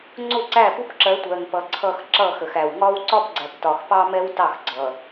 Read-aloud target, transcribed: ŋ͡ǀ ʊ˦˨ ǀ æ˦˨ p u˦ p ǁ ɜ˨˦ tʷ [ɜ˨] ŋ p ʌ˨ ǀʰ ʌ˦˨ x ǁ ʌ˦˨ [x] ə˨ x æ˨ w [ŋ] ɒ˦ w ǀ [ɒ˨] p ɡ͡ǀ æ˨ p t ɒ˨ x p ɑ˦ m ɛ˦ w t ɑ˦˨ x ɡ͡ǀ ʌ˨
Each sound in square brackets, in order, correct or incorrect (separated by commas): correct, correct, correct, incorrect